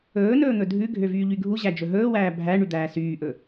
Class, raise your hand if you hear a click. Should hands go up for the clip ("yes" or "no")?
no